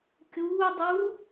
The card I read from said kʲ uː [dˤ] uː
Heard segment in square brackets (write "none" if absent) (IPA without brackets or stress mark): dˤ